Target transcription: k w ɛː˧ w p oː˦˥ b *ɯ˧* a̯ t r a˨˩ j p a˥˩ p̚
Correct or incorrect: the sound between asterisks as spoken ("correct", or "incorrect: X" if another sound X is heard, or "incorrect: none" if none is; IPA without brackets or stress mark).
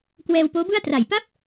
incorrect: ɯ˥˩